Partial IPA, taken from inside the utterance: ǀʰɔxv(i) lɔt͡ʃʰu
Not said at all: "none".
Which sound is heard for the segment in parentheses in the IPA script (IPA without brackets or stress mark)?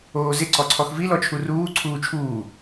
i